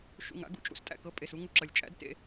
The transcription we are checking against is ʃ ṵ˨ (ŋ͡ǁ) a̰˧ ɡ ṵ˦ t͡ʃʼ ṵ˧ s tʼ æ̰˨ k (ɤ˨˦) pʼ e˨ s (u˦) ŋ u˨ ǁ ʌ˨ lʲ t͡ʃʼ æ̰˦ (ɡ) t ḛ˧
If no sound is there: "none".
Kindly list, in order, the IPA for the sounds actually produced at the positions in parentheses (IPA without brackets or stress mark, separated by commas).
ŋ, ɤ˨˦, u˦, d